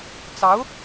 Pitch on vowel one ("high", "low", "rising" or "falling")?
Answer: rising